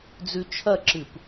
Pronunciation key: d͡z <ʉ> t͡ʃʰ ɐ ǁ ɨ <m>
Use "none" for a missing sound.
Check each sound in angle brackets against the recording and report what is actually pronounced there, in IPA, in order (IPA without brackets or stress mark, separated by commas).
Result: ʉ, p